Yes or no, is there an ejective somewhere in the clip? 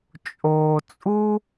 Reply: yes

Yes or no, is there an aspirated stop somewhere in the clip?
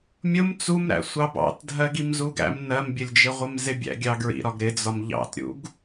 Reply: no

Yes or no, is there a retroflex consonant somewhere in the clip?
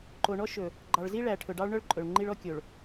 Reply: yes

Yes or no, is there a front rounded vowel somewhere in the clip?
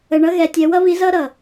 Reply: no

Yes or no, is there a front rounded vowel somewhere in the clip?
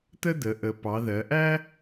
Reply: no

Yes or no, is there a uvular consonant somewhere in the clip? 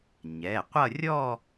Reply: yes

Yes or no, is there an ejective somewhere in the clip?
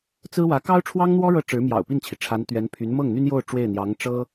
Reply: no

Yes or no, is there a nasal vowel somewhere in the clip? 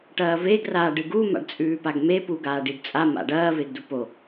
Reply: no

